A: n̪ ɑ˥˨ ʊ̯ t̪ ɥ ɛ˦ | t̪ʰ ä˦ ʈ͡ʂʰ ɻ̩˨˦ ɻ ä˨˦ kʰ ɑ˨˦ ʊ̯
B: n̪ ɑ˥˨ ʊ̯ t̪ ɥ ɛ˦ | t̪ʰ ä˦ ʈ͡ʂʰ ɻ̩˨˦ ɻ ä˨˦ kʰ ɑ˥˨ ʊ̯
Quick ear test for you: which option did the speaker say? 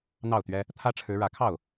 B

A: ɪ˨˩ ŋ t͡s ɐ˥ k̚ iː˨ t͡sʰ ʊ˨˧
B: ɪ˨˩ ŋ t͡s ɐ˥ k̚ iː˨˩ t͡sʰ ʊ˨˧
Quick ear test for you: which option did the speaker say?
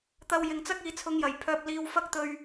A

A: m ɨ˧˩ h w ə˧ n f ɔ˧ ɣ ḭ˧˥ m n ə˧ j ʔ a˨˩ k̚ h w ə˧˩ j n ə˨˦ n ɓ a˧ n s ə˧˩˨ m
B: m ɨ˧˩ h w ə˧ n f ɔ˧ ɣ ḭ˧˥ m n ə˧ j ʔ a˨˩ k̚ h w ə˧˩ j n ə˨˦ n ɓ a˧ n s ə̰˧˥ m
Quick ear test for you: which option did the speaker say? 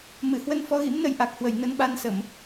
A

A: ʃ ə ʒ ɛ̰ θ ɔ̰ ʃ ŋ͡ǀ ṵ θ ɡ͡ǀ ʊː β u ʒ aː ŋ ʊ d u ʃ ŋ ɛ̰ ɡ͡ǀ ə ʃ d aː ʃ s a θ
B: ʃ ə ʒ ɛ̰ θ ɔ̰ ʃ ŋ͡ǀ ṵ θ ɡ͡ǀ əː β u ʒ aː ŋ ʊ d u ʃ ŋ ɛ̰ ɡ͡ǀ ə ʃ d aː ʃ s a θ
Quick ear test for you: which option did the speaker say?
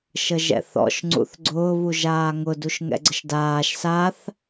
A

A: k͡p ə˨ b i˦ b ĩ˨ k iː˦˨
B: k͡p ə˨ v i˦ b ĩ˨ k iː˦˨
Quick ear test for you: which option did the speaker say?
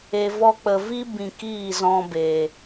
B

